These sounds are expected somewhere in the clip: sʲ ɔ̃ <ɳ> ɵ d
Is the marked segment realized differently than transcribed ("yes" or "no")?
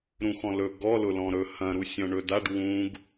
no